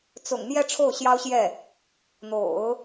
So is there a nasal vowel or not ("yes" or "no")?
no